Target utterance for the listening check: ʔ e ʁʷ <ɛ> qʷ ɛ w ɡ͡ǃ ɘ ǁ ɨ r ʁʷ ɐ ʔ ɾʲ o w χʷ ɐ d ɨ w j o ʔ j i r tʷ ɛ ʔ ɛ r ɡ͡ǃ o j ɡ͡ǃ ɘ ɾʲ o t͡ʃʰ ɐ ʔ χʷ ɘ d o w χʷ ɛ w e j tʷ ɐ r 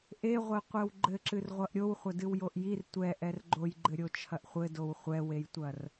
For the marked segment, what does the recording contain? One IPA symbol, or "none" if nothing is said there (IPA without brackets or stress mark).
e